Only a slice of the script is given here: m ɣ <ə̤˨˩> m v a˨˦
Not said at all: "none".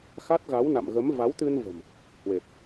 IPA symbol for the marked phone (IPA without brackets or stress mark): ə˨˦